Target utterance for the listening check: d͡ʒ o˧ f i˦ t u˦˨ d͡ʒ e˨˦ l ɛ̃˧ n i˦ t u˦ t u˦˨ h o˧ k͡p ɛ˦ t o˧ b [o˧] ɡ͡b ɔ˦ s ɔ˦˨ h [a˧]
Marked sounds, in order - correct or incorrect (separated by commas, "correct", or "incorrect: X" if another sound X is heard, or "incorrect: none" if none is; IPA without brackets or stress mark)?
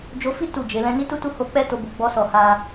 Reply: correct, correct